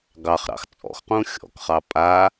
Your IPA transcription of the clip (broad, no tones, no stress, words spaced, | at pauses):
ɡɑχɾɑ̰x t͡sʼɔ̰xqũ xʲɔ̰kχɑ pʼa